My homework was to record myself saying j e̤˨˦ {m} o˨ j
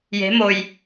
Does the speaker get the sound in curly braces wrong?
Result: no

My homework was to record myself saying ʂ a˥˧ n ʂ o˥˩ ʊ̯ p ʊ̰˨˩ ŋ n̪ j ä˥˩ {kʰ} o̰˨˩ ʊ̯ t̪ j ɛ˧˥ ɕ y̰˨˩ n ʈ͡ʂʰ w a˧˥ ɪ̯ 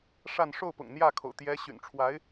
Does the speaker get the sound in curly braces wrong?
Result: no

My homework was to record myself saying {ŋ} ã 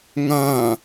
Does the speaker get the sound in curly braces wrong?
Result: no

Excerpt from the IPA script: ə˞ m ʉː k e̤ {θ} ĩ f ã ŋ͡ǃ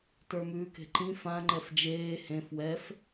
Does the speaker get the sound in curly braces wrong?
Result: yes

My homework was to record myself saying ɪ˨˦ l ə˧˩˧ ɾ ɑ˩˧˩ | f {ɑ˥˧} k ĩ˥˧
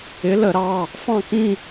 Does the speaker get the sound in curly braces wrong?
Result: yes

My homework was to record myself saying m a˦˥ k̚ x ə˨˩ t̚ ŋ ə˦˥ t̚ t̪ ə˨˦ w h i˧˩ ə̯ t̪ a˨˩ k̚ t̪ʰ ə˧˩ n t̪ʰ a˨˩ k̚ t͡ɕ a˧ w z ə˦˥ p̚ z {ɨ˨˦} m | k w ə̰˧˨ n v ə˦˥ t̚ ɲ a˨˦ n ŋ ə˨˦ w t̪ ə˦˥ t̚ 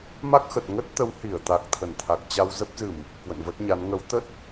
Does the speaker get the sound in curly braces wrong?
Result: yes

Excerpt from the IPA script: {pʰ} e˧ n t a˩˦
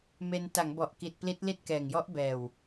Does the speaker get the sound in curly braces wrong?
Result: yes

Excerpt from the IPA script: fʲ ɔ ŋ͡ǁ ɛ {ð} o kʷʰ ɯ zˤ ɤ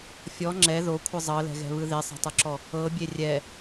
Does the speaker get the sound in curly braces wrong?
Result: no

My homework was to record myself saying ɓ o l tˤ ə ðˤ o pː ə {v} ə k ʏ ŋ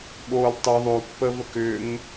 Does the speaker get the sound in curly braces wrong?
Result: no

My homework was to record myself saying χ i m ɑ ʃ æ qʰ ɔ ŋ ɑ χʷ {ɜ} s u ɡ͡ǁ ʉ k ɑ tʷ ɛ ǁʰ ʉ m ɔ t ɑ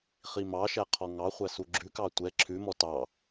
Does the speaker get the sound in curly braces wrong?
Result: yes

